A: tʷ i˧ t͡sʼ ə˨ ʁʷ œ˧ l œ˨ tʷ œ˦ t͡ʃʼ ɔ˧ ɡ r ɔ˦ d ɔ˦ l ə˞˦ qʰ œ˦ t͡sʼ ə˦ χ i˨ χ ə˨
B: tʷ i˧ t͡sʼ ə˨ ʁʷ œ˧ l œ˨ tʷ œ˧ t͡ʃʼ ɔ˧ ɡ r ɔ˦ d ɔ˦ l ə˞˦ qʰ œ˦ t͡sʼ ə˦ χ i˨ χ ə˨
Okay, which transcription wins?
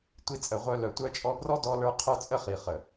B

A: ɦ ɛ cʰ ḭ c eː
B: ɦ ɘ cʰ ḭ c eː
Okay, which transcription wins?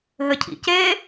B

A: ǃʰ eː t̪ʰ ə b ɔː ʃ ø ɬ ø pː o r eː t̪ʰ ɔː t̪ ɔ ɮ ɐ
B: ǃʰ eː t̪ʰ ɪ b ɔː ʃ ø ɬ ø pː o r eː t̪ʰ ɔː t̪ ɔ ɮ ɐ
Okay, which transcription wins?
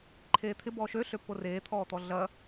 B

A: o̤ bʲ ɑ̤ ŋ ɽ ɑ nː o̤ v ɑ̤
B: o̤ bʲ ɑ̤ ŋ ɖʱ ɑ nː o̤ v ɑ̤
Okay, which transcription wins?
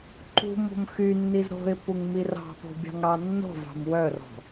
A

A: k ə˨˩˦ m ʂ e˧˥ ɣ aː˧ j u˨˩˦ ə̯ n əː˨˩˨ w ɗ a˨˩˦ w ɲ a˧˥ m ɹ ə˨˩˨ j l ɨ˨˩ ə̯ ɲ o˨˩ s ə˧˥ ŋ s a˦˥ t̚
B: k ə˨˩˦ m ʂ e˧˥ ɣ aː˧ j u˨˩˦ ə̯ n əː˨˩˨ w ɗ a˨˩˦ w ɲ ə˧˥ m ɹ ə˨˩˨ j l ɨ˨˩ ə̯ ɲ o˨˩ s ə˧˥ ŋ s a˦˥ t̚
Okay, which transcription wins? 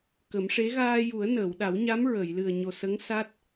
A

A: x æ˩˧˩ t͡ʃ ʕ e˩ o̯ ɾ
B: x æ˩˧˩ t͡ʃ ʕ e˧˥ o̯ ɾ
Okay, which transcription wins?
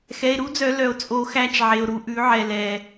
A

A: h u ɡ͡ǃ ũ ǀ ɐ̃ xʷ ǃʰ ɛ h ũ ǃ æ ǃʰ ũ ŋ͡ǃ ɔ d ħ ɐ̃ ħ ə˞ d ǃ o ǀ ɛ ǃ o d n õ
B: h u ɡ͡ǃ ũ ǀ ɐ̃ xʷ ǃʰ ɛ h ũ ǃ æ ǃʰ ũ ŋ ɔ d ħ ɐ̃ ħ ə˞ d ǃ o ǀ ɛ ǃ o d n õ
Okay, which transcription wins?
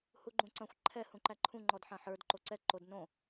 A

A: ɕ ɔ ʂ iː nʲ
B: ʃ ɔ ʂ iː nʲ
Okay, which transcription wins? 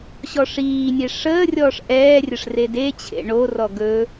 A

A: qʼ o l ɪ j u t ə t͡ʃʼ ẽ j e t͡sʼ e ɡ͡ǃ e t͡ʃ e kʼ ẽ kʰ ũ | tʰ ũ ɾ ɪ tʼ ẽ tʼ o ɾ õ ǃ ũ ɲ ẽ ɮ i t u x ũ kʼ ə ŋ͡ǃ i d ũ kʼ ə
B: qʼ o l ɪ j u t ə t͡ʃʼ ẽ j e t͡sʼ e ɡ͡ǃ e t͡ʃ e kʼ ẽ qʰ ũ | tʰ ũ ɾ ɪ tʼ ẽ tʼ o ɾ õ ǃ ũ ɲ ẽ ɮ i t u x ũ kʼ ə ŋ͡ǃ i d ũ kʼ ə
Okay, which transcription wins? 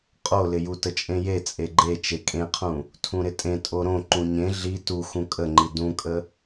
B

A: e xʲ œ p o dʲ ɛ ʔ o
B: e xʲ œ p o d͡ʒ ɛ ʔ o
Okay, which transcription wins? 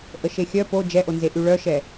B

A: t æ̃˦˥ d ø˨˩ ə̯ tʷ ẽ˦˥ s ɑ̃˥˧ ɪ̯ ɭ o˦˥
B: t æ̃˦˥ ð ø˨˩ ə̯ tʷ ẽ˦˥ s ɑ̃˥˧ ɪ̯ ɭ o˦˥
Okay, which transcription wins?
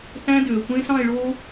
A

